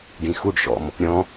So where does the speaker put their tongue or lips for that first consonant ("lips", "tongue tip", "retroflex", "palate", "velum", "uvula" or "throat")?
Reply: retroflex